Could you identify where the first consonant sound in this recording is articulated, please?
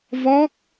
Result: labial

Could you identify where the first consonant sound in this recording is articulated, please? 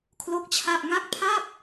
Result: velar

